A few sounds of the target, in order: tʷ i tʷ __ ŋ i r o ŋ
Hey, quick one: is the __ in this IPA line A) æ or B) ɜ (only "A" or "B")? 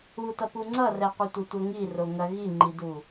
B